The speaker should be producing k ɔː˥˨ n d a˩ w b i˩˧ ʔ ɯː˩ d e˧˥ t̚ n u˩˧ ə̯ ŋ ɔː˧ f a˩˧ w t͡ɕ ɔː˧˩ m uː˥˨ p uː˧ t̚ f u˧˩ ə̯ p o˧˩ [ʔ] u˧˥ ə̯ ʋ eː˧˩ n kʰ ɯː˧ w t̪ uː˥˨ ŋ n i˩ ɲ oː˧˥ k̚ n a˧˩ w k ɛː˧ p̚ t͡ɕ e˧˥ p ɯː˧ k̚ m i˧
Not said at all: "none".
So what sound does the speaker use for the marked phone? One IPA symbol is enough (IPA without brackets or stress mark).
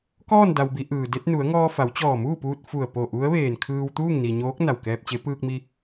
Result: ʔ